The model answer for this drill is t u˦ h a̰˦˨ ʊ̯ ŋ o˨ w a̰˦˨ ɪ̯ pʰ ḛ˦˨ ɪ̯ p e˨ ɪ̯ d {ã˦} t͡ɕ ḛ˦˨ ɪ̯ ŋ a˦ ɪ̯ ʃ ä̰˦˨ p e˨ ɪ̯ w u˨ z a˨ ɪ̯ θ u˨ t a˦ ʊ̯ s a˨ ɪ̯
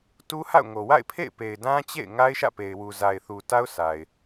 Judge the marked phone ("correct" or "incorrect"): correct